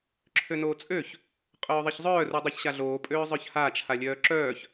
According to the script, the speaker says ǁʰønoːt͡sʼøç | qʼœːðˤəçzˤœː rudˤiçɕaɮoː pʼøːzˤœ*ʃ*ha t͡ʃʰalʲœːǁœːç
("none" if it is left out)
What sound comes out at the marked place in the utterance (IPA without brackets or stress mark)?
ç